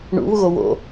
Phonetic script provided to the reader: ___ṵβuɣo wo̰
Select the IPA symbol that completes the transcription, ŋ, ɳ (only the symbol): ɳ